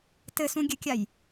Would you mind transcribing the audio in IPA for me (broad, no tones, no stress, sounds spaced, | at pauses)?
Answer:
t ɘ s ũ ɡʲ ɘ kʲ a j